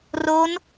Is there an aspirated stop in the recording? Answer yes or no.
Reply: no